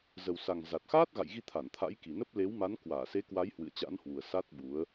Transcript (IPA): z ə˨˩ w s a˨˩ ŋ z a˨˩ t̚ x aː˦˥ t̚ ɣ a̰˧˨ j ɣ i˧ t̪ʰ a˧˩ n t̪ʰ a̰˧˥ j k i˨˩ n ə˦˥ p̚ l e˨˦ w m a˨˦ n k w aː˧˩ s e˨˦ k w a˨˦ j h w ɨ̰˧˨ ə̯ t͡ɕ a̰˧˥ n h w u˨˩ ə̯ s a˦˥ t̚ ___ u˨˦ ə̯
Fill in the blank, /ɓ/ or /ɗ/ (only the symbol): ɓ